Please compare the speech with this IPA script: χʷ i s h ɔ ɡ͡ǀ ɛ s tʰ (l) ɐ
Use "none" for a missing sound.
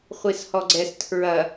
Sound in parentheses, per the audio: ɹ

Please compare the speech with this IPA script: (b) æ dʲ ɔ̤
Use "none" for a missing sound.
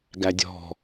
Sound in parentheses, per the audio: ɡ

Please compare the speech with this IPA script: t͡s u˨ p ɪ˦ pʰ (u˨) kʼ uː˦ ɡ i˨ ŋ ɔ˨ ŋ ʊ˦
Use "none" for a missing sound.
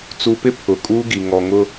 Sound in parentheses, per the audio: ʊ˨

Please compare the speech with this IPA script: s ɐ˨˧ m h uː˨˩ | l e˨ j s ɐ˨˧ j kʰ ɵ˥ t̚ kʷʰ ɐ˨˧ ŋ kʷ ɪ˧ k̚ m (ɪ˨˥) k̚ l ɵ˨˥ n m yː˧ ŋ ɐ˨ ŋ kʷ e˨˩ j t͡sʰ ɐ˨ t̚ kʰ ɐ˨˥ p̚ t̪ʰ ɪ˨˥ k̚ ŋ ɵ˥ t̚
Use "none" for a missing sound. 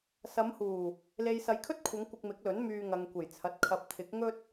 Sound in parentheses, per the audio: ɪ˨˥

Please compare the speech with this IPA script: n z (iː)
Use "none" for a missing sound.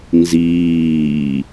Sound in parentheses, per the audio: iː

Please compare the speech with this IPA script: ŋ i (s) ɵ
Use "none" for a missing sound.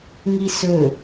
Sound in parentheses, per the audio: s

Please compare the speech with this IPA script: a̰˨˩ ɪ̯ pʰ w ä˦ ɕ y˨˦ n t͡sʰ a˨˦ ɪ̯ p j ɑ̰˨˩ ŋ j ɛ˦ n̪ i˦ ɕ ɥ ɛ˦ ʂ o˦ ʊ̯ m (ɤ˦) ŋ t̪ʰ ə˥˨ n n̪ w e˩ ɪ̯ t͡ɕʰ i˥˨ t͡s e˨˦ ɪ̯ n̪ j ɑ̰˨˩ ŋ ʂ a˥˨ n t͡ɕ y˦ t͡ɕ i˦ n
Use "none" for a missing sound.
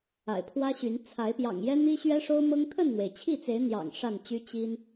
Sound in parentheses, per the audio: ɤ˦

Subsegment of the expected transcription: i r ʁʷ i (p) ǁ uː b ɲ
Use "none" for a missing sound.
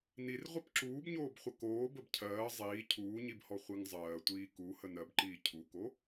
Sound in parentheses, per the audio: p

